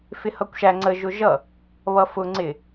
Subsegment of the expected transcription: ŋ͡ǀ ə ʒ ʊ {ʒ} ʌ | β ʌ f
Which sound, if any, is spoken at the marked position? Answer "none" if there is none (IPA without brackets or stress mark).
ʒ